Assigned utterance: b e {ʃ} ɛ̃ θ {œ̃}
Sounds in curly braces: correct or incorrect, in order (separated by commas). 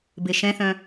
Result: correct, correct